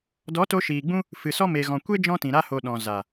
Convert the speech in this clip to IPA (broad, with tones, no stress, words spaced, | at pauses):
dɔ˨˦to˧ʃiː˨ɡ͡bũ˦ | fɨ˨sɔ˦ me˨ɣɔ̃˨ kʷe˦ d͡ʒɔ̃˦tĩ˨ ɾa˧ho˨ ɗɔ̃˨ za˨